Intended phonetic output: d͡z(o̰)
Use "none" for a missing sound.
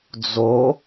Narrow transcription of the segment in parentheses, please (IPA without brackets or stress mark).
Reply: o